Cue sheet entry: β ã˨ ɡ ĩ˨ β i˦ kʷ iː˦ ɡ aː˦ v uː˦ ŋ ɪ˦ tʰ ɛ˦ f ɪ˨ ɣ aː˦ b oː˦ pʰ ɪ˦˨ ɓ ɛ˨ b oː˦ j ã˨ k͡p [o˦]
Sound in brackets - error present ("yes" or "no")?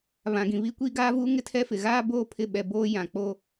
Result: no